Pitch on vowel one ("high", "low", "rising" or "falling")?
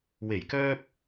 low